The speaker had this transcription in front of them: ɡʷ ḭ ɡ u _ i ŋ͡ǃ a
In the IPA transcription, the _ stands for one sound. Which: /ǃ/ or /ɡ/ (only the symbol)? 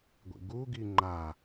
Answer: ɡ